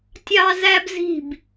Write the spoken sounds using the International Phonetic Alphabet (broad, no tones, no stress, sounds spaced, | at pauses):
tʲ ɑ z æ b z i̤ b